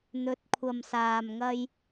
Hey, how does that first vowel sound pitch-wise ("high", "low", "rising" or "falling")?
rising